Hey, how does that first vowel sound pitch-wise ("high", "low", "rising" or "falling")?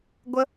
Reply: high